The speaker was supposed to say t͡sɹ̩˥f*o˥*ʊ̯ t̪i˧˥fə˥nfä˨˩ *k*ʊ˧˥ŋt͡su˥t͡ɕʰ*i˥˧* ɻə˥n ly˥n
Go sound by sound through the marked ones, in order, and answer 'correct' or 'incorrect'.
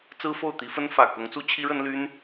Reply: incorrect, correct, incorrect

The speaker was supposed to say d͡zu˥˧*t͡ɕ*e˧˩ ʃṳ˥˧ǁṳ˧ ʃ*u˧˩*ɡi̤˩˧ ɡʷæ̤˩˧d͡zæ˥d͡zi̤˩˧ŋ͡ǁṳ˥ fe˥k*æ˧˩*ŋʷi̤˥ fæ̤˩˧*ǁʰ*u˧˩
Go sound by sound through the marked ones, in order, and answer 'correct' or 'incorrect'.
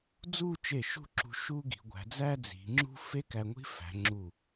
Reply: incorrect, incorrect, incorrect, incorrect

